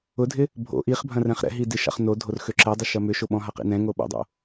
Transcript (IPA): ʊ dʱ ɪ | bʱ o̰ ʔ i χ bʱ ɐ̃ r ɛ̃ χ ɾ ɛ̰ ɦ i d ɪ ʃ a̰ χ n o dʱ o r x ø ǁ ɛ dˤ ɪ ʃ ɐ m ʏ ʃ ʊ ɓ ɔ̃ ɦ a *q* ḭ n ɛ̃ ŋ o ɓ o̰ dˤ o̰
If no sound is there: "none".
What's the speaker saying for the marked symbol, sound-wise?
q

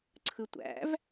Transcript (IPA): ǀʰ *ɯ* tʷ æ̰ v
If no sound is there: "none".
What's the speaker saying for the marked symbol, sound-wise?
ɯ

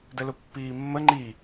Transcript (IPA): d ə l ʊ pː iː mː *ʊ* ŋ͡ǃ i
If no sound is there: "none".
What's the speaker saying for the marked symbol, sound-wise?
ə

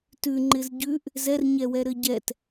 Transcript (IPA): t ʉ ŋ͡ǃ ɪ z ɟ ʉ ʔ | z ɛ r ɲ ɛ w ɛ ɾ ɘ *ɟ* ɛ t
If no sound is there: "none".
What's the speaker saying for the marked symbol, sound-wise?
ɟ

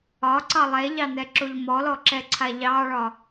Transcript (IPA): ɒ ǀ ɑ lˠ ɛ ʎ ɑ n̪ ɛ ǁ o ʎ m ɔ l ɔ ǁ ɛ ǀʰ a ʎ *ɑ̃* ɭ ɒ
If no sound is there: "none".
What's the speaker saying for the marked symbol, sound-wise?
ɑ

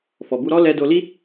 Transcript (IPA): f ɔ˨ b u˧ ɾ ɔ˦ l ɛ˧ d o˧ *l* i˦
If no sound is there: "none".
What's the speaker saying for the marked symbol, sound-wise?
l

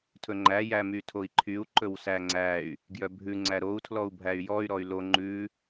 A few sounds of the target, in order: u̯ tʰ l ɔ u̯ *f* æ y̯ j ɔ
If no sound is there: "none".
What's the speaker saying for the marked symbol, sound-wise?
bʱ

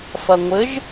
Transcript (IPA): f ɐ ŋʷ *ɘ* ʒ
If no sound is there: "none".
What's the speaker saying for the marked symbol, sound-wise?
ɘ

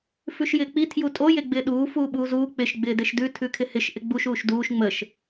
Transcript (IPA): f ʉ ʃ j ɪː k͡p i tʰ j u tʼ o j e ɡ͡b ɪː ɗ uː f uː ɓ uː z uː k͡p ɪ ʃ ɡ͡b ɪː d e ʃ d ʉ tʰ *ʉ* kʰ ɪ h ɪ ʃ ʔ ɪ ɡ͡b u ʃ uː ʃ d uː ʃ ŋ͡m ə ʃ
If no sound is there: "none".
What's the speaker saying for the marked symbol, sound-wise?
ʉ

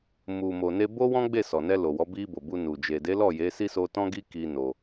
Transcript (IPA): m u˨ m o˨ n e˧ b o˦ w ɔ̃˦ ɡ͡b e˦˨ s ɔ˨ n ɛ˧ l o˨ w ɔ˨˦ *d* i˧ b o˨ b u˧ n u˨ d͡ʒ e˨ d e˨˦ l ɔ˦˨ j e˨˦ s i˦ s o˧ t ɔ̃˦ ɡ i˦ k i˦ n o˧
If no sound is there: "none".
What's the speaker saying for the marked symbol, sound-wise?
b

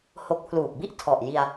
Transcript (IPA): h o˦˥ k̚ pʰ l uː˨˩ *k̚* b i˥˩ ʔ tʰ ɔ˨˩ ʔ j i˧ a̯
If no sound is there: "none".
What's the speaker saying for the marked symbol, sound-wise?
k̚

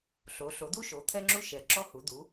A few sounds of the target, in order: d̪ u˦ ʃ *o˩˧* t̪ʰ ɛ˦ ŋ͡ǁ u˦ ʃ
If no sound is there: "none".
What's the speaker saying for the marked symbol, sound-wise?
o˩˧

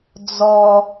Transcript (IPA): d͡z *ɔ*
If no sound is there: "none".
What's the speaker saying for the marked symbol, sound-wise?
ɔ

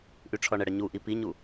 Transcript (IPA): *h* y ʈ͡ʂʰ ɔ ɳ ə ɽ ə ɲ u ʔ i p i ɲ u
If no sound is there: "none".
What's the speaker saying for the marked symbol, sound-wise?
ʔ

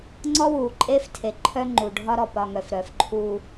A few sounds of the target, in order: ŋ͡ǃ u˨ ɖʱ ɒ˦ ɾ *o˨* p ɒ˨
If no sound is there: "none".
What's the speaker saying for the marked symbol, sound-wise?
ɔ˨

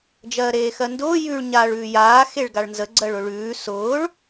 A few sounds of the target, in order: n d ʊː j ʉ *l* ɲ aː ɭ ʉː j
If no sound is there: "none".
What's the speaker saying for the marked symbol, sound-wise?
ɭ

